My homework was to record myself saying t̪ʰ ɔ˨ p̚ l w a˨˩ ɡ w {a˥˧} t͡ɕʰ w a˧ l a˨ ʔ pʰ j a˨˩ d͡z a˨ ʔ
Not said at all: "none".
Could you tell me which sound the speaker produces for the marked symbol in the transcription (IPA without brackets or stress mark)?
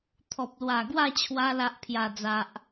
a˥˧